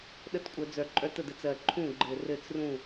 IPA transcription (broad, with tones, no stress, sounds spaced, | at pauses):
ɗ ə˥˩ t kʷʼ œ˧˩˧ d͡z œ˨˩ ǃʼ œ˦˥ t ə˥˩ d ə˦˥ t͡s ɜ˨˩ ǃʰ ũ˥˩ ɡ͡ǃ ɘ˨˩ r ɘ˥˩ t͡s r ũ˥˩